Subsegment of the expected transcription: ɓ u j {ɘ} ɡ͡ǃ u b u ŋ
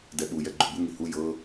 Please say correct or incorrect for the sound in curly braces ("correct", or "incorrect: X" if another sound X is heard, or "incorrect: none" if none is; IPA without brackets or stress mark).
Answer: incorrect: ɛ